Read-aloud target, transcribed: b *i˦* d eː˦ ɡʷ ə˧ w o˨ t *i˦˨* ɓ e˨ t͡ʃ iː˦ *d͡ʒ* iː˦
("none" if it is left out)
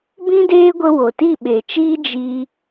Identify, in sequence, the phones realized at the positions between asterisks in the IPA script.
ĩ˦, i˦˨, d͡ʒ

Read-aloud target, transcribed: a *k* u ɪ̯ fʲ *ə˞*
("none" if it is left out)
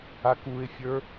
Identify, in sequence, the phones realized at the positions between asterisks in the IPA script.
k, ə˞

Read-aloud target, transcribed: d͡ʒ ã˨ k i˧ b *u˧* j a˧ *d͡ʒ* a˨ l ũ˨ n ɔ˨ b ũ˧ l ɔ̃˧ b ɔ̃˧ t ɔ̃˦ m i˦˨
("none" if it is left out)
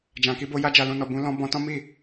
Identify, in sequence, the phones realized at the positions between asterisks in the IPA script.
o˧, d͡ʒ

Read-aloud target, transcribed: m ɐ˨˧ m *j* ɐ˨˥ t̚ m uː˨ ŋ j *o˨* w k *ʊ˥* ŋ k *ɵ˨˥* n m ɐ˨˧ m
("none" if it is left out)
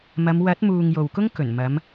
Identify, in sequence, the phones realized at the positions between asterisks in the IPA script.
w, o˨, ʊ˥, ɵ˨˩

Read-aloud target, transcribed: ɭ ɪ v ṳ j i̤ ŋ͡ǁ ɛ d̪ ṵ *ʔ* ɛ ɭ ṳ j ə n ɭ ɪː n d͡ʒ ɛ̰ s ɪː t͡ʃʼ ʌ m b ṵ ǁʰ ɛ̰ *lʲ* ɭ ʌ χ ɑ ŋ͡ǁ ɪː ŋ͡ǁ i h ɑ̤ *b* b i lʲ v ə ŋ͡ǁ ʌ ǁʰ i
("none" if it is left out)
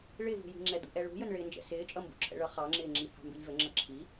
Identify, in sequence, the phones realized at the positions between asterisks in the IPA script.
ʔ, none, m

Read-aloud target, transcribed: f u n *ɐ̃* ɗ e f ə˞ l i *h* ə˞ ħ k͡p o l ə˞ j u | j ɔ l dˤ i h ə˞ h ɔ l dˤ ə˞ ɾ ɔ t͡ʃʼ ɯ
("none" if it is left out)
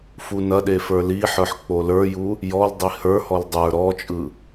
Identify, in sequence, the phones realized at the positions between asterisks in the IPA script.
ɐ, ħ

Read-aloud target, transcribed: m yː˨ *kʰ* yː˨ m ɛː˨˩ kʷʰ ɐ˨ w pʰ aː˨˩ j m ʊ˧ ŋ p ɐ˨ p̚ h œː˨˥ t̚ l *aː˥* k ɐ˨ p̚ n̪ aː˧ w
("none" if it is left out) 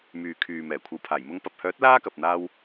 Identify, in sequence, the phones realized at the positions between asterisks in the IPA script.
kʰ, aː˥

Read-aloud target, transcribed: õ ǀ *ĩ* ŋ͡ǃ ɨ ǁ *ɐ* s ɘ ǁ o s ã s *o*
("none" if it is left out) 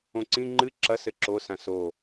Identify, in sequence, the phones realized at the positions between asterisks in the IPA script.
ĩ, ɐ, o

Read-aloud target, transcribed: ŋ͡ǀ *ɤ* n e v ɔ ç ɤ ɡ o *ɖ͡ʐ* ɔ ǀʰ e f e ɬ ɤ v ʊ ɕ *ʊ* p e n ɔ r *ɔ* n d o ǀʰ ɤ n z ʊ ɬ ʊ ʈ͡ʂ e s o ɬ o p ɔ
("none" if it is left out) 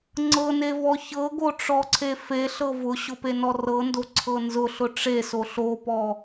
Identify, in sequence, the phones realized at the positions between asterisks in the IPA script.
ɤ, ʈ͡ʂ, ʊ, ɤ

